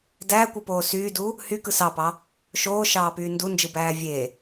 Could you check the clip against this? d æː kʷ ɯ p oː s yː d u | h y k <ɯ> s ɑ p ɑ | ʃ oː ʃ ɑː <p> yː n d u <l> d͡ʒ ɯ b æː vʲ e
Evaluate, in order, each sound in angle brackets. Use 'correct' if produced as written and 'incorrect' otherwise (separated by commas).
correct, correct, incorrect